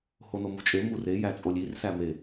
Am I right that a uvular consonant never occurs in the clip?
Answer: yes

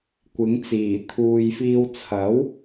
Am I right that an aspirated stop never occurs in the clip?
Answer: no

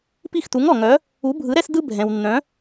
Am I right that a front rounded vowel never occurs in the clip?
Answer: no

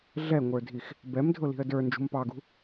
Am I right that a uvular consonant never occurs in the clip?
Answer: yes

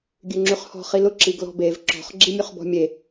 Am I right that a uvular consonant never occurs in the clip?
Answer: no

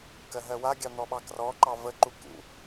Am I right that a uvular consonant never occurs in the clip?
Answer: yes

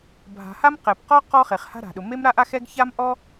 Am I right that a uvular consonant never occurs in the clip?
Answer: no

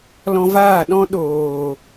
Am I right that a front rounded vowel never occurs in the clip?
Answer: yes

